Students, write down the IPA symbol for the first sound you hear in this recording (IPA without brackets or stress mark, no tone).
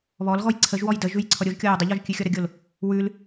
β